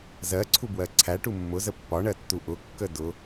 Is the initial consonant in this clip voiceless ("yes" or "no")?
no